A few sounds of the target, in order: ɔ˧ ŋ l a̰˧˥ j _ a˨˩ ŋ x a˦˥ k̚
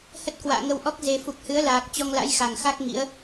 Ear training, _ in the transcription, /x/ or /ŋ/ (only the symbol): x